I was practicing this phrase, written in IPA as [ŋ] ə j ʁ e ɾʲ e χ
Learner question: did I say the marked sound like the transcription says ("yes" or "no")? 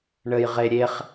no